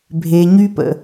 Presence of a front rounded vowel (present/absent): present